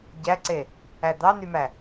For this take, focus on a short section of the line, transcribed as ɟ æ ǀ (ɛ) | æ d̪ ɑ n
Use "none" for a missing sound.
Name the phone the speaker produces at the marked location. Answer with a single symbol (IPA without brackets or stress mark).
e